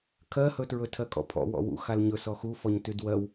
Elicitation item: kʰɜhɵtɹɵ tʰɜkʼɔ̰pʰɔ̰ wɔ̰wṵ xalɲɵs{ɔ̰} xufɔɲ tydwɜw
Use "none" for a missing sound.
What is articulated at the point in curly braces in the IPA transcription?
ɔ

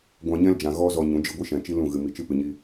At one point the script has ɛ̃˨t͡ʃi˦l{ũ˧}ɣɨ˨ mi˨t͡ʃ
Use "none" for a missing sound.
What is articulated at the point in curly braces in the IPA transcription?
ũ˦˨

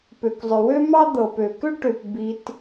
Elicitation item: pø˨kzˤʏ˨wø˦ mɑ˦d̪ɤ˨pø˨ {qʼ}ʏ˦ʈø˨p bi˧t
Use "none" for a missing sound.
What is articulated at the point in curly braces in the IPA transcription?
k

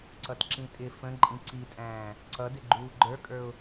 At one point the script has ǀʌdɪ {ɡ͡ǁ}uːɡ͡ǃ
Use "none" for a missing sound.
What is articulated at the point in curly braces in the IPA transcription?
ɡ͡ǃ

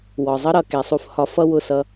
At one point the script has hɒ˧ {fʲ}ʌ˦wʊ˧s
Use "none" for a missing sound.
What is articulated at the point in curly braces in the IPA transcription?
f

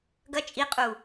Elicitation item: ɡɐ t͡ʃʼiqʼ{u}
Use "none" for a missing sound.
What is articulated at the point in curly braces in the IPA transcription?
u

